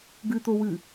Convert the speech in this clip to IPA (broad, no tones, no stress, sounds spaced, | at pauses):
ɡ ɨ t̪ o w ɨ